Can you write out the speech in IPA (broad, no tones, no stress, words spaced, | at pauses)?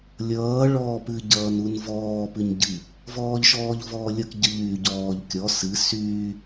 lʲʌː ɭɔːpɨ ɟʌːnunvɔː pɨɲɟɨ | vɔːʎʃɔːʎvɔːlʲʌk ɟʌʎyːɟɔːʎ kʲɔ sɨ syː